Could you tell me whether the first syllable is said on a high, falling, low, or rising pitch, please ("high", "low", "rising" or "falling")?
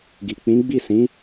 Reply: low